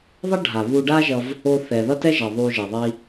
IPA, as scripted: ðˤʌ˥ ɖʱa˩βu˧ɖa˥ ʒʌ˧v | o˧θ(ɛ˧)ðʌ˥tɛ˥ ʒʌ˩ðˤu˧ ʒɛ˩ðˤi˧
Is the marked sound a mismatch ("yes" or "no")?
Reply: yes